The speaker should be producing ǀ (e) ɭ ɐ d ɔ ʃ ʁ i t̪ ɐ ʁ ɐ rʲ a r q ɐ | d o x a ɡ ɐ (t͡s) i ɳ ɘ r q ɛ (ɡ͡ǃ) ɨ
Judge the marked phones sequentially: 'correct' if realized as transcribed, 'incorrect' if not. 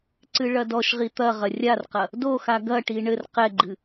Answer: incorrect: ɨ, incorrect: ʈ, correct

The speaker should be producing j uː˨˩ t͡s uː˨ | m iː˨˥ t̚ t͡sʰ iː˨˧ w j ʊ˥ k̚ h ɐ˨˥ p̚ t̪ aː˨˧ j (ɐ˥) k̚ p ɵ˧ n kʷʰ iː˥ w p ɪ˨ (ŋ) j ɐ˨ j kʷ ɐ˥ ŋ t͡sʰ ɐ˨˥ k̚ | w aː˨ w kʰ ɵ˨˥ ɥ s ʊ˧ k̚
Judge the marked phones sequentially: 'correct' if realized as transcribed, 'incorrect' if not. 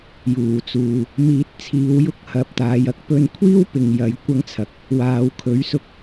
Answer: correct, correct

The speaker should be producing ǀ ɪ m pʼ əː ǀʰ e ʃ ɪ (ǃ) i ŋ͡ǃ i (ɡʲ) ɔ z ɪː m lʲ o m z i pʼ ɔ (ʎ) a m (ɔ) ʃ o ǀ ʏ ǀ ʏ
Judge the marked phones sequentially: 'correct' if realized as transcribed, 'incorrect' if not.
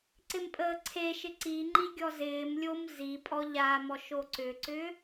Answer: incorrect: ǀ, correct, correct, correct

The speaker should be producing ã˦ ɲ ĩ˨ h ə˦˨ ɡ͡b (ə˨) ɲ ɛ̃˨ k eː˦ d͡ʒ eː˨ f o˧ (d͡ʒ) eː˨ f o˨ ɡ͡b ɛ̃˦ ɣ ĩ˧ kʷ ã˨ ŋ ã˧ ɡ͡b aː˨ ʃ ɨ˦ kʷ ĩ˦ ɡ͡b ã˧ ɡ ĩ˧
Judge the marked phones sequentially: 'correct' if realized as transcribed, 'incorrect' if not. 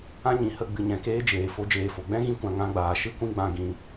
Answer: incorrect: ɨ˨, correct

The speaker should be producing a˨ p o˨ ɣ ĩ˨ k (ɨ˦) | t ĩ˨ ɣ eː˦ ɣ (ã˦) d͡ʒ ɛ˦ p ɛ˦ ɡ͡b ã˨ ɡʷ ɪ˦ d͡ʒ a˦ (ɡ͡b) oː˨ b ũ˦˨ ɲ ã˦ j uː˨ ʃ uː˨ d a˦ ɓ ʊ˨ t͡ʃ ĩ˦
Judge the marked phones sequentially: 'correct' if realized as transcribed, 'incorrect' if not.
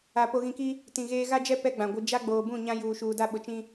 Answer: incorrect: i˦, incorrect: a˦, correct

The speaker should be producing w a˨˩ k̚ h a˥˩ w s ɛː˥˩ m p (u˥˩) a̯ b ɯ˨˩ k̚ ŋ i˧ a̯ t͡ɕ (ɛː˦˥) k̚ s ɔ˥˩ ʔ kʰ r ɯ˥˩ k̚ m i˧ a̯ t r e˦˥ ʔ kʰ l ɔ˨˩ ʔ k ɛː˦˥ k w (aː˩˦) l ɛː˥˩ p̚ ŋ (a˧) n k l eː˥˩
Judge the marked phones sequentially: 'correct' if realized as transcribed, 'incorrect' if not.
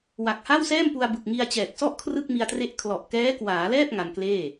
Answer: incorrect: u˧, incorrect: ɛː˨˩, correct, correct

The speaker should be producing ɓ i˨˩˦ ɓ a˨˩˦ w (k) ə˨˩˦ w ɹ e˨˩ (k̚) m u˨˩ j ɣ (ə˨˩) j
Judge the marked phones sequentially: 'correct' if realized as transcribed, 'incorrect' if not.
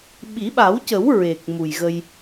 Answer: incorrect: c, correct, incorrect: ə˧

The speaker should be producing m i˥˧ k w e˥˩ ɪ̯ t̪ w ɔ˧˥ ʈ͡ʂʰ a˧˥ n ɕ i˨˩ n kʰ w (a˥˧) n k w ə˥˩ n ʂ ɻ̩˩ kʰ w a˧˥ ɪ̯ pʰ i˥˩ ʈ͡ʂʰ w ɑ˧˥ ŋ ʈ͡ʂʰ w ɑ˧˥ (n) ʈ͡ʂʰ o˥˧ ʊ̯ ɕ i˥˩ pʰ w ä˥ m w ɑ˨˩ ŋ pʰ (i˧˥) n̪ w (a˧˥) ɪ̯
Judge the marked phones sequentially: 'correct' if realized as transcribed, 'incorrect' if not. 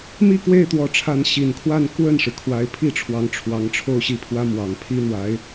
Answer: correct, incorrect: ŋ, incorrect: i˥, correct

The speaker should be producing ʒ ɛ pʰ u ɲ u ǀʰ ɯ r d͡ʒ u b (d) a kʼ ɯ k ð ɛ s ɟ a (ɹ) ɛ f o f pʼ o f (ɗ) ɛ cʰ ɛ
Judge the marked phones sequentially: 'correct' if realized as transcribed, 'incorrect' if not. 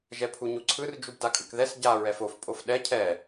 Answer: correct, correct, correct

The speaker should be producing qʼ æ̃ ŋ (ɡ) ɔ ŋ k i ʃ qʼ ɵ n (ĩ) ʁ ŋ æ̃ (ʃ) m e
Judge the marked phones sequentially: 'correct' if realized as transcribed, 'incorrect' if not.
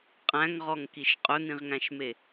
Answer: incorrect: ʁ, correct, correct

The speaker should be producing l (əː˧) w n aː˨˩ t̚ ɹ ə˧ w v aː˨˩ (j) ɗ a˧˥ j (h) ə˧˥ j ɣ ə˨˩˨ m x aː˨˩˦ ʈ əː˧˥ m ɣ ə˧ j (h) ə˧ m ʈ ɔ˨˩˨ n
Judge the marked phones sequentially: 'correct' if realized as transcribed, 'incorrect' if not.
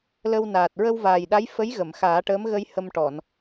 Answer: incorrect: ə˧, correct, incorrect: f, correct

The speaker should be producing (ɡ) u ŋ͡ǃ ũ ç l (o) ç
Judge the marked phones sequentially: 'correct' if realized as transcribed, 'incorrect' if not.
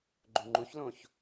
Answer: incorrect: ɡ͡ǃ, incorrect: õ

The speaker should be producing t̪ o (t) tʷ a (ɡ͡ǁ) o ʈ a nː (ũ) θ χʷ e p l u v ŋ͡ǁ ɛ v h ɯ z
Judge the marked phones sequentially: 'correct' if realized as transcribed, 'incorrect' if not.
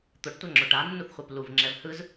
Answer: incorrect: ʈ, incorrect: ŋ͡ǁ, incorrect: u

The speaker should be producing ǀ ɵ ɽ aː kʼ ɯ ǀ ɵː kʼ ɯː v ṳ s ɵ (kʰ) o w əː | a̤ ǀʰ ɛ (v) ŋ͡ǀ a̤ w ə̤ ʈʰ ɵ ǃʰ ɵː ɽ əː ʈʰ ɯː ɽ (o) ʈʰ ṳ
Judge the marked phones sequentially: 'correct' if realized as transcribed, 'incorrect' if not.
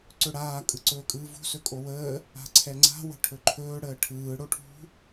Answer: incorrect: kʼ, incorrect: none, correct

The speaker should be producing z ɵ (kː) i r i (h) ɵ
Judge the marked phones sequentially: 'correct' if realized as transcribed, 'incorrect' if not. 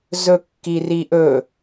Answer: correct, incorrect: ʔ

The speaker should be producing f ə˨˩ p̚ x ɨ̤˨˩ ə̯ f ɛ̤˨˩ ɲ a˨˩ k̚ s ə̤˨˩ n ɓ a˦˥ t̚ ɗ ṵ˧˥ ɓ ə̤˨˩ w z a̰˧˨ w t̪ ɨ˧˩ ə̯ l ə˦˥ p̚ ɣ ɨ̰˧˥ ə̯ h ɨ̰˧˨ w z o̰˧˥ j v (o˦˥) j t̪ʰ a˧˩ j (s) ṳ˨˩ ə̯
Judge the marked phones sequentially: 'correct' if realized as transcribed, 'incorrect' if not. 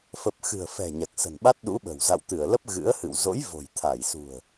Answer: incorrect: o̤˨˩, correct

